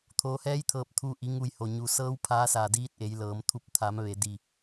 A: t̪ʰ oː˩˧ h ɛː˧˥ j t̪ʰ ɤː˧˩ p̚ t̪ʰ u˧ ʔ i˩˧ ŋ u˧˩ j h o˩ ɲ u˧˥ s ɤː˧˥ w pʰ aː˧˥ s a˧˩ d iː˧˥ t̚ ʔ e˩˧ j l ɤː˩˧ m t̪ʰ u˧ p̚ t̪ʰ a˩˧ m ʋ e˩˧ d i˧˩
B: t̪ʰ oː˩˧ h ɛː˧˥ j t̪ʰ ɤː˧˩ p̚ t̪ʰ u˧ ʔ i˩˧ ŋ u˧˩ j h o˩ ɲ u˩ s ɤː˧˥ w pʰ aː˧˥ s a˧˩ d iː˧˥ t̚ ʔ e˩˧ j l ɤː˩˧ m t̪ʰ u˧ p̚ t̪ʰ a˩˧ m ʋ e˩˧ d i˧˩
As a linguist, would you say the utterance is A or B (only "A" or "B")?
B